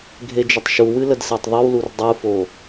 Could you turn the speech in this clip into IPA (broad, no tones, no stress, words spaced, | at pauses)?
ɡʱed͡ʒətˤʃuwɨ lədsetˤðˤɨwlur dˤufo